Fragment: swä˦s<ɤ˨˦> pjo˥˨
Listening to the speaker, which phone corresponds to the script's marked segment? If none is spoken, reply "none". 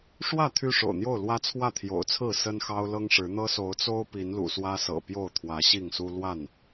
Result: ɤ̰˨˩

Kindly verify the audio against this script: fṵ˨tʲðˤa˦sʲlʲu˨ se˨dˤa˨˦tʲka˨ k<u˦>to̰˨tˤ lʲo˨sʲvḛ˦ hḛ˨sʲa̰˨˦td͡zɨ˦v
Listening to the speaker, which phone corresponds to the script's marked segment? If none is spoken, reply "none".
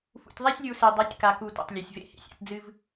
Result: u˨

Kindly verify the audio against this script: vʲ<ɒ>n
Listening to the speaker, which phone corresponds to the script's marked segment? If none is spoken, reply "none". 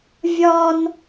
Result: ɒ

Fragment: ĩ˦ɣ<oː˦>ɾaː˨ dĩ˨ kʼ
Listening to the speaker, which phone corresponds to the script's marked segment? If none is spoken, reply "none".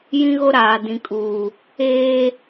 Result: o˦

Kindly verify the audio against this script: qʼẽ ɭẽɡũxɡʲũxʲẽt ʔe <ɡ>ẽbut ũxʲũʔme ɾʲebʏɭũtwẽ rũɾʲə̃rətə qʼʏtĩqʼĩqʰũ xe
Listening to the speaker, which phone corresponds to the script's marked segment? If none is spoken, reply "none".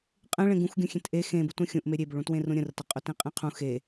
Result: x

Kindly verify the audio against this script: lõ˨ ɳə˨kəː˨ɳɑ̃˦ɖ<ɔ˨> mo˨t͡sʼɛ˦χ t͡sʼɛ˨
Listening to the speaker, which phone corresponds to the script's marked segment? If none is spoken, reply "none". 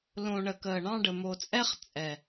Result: ə˨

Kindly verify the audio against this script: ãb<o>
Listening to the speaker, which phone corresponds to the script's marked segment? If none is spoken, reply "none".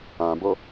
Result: o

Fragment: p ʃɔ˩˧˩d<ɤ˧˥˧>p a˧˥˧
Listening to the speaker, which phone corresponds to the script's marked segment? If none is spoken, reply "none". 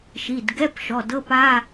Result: ɤ˧˥˧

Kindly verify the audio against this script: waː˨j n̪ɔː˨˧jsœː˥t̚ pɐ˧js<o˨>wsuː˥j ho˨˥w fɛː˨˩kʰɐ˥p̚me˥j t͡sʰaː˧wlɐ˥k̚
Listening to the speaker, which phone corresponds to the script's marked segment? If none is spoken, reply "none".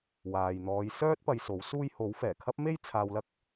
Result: o˨˥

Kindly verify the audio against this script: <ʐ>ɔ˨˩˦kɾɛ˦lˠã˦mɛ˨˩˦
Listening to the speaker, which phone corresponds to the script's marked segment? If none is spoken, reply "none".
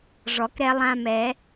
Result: ʐ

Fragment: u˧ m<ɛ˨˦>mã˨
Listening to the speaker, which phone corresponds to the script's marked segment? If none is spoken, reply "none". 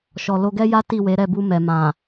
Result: ɛ˨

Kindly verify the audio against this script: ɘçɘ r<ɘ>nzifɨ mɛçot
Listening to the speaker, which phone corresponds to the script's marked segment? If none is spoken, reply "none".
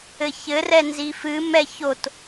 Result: ɛ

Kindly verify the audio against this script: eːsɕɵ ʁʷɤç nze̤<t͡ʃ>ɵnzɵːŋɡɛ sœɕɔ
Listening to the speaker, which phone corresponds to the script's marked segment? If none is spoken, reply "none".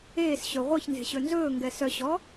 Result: ɕ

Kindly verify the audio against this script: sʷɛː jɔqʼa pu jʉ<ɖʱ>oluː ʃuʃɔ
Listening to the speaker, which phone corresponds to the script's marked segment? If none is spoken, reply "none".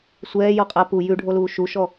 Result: ɖʱ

